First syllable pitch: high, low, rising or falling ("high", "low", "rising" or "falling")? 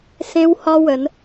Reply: high